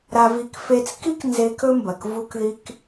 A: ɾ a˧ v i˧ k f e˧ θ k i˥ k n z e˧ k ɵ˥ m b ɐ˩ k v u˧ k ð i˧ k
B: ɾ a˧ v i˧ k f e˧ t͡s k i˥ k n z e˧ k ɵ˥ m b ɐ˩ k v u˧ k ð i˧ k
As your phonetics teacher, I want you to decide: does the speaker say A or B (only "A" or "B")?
B